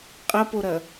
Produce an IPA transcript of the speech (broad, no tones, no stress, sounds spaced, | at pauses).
qʼ ɐ p o ɾ ɐ